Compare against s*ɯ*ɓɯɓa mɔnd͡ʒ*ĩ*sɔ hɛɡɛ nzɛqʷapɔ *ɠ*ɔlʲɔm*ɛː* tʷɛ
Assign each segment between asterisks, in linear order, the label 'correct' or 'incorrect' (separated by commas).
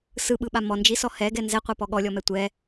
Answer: correct, incorrect, correct, incorrect